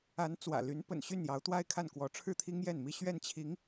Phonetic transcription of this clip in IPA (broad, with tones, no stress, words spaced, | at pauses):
a˧˥n t͡swä̰˨˩ly˧˥n pə̰˨˩nɕy˥˩njɑ˧˥ʊ̯ t̪wa˥ɪ̯kʰa˥˩n kwɔ˧˥ʈ͡ʂʰɻ̩˥˩t̪ʰi˥ŋ jɛ˥˩nmi˥ ɕɥɛ˥˩nt͡ɕʰi˧˥ŋ